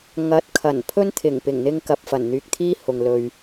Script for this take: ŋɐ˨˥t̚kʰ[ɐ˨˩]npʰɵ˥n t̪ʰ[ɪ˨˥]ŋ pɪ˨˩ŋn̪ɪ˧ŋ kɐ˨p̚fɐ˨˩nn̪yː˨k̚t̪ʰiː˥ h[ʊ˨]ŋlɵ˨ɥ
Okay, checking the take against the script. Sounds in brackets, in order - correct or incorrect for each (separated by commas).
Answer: correct, incorrect, correct